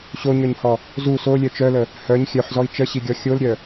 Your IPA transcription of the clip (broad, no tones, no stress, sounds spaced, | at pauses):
ɕ o ɲ œ ɲ h ɔ | z u s o lʲ œ t͡ʃ œ l ə | h œ ɲ xʲ œ ħ z ɔ i̯ t͡ʃ ə ɕ i ɡʲ ɔ xʲ o l ɾʲ œ